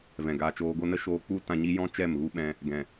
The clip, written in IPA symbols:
v ɛ̃˨ ɡ aː˧ t͡ʃ oː˧ ɡ o˦ n ə˦ ʃ oː˧ k͡p u˦ t ã˧ ɲ i˦ j ɔ̃˦ t͡ʃ ɛ˦˨ m ɣ u˦ ɓ ɛ̃˧ | ɡ ɛ̃˨

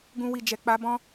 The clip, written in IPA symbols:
ɡ ũ˧ w i˨ d͡ʒ ɛ˨ k͡p a˧ b ɔ̃˧

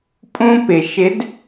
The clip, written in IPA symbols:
pʼ ũ˥ p ɪ˩ ʃ ɪ˨˥ d

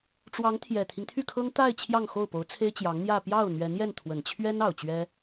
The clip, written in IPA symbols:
ʈ͡ʂ w ɑ˧˥ ŋ t̪ʰ j ɛ˨˩ t̪ʰ i˦ ŋ t̪ʰ y˥˩ kʰ ɤ˥ ŋ t̪ a˥˧ ɪ̯ t͡ɕʰ j ɑ˥˧ ŋ x o˥˩ ʊ̯ p o˧˥ ʊ̯ t͡sʰ e˥ ɪ̯ t͡ɕ j ɑ˧˥ ŋ n̪ j ä˥˧ p j ɑ˥˩ ʊ̯ n̪ ɥ ɛ˧˥ n j ɛ˥˩ n t̪ʰ w ə˨˩ n t͡ɕʰ ɥ ɛ˥ n ɑ˨˩ ʊ̯ t͡ɕ ɥ ɛ˥

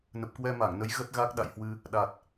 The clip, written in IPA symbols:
n ə˨˩ p̚ k w ɛ˧ m a˧˩ ŋ n ə˨˦ j ɣ ə˦˥ t̚ ɣ a˦˥ k̚ ɗ a̰˧˨ j h w ɨ˧ | ɗ a˨˩ t̚

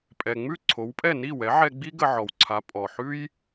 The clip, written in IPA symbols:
pʼ ɛ˩ ŋ͡m ʉ˥˩ ǀʰ o˩˥ w pʼ ɛ˥˩ n i˥˩ w ɛ˩˥ ʕ ɛ˧ ɡ͡b i˥ ɡ ə˧ ʕ ɔ˩ w ǀʰ a˩˥ pʼ ɔ˩ ħ ʉ˥ j

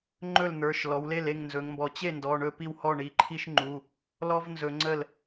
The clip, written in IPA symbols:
ŋ͡ǃ ɵ˥˩ l n̪ ə˞˩˧˩ ʃ l ɔ˩˧ w l e˥˩ l e˥˩ ŋ n z ɵ˩˧ ŋ m b ɔ˩˧ t͡ɕ e˥˩ n d ɔ˩˧˩ ɳ ɵ˥˩ p i˥˩ w h ɔ˥˩ ɳ i˩˧˩ ǃʰ i˥ ʃ ŋ͡ǃ u˩˧˩ | l ɔ˥ v n z ɵ˩˧ ŋ͡ǀ ə˥˩ l

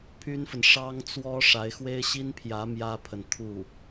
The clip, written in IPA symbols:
pʰ y˥ n f ə˨ n ʂ ɑ˥ ŋ t͡s w ɔ˥ ʂ a˧˥ ɪ̯ x w e˥ ɪ̯ ɕ i˥ n pʰ j ä˧˥ m j ä˥ pʰ ə˨ n t̪ʰ u˥˩

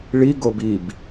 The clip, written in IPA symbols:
ɭ i ɡ o b i b

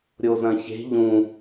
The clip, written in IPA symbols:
ɾʲ o z ɐ̃ ç e̤ ʎ ũ

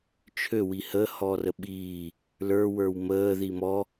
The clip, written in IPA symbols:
t͡ʃʰ ø w i h ə h ɔː r ə ɓ iː | l ə˞ w ə˞ w m əː ð i m ɔ

